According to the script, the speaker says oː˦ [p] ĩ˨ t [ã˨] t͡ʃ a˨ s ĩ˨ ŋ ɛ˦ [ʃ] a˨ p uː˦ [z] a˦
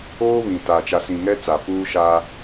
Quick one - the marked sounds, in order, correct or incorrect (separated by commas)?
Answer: incorrect, incorrect, incorrect, incorrect